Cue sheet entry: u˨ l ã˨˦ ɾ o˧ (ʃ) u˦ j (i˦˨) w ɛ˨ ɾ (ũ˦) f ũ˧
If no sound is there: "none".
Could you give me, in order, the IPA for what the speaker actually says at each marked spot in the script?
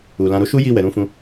ʃ, i˦˨, ũ˨˦

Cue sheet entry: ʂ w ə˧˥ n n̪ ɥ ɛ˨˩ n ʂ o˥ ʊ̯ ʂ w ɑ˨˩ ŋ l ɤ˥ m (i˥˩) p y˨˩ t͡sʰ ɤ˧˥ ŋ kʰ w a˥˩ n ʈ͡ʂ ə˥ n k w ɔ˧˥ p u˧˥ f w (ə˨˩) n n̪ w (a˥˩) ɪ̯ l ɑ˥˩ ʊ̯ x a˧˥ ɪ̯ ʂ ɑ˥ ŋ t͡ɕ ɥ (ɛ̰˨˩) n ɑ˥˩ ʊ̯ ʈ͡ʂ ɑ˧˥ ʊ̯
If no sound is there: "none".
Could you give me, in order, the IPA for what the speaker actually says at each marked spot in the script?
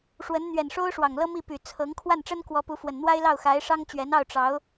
i˥˩, ə˨˩, a˥, ɛ˧˥

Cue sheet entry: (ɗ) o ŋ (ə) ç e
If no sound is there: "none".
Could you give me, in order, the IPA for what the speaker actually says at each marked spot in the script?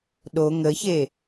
ɗ, ə

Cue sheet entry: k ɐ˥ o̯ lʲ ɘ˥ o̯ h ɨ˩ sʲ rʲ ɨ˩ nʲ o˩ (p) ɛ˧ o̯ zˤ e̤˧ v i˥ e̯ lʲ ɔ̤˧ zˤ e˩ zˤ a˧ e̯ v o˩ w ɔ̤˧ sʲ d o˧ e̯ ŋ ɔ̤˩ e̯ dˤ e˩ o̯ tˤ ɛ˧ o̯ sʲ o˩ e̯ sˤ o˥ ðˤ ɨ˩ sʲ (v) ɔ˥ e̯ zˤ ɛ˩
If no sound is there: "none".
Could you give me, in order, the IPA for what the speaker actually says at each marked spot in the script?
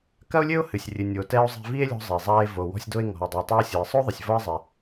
t, v

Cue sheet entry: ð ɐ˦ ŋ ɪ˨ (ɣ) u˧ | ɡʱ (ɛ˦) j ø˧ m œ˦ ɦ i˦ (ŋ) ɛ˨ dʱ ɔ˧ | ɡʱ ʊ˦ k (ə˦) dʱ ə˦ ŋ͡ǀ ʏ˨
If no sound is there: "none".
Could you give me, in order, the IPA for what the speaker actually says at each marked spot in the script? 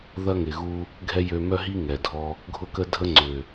ɣ, ɛ˦, ŋ, ə˦

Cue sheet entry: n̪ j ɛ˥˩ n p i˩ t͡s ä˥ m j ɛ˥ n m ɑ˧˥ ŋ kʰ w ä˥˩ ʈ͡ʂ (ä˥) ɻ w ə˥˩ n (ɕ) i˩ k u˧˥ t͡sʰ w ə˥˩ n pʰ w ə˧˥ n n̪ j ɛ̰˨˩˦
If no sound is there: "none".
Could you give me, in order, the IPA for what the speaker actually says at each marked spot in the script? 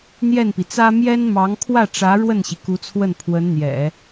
ä˧˥, ɕ

